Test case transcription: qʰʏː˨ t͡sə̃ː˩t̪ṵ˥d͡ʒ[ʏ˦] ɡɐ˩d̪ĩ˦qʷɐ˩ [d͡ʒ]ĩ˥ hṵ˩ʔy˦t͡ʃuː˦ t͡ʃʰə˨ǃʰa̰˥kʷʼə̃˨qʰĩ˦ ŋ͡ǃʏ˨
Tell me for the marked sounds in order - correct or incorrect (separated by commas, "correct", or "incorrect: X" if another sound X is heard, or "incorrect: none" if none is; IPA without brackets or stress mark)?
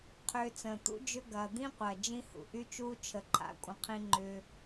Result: correct, correct